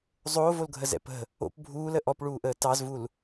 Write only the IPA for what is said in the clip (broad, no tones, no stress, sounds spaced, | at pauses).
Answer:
zˤ oː v o l ɡʱ ə z ɛ̰ p ə̤ | o̰ p bʱ uː l ə ʔ ɔ p ɭ uː ʔ əː t ɑ z v u l